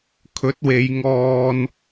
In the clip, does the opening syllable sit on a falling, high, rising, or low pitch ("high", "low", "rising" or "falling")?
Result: rising